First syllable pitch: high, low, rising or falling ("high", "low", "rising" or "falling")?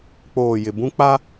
low